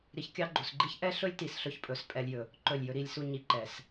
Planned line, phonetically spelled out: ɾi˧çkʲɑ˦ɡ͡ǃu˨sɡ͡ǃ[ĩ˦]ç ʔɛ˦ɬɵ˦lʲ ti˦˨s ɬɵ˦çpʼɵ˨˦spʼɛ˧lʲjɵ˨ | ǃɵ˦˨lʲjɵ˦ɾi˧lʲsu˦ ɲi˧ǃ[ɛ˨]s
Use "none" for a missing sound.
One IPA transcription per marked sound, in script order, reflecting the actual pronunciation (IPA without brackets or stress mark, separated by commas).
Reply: i˦, ɛ˨